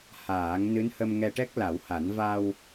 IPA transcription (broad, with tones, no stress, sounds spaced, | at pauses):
h aː˨˩˦ ŋ n ɨ˧˥ n h ə˧ m ŋ ɛ˧ ʈ ɛ˦˥ k̚ l a˨˩˦ w h a˨˩˦ n v a˧ w